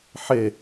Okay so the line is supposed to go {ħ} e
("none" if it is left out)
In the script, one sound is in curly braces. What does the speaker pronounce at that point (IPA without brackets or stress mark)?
ħ